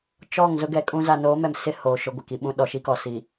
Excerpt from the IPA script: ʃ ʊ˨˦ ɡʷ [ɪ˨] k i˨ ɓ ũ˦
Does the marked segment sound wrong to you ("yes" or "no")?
no